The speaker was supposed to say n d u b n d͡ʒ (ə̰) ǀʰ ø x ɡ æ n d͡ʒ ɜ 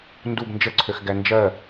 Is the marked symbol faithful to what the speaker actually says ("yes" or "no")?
no